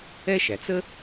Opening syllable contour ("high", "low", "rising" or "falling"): high